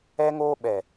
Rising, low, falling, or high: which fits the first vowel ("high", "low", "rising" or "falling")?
high